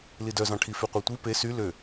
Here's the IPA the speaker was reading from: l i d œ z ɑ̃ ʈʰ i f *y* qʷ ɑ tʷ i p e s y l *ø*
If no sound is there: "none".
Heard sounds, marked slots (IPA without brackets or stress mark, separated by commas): y, ø